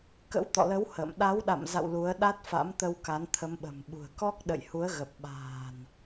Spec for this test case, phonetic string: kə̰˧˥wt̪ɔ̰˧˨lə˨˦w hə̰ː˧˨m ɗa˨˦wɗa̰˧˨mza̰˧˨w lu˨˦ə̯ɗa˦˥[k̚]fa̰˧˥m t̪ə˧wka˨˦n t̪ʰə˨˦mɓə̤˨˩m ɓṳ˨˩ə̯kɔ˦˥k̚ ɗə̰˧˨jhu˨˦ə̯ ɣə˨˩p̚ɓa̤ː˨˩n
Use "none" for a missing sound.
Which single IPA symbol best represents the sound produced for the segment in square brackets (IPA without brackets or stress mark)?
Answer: t̚